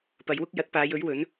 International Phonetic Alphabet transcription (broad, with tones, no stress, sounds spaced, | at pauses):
p ɐ˨˧ j w ʊ˥ k̚ j ɐ˨˥ t̚ p aː˨˧ j ɵ˨˥ ɥ w ɵ˨˥ n